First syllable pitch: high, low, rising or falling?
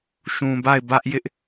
low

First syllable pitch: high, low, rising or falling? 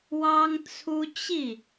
high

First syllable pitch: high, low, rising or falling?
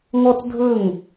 high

